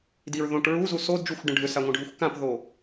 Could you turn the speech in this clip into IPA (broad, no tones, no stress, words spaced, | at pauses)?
diɹ ðõʈ ɹuzu sodd͡ʒuxʷɖə̃ ɖʱʏsaŋʷə̃ɖʱuxʷ kãpðo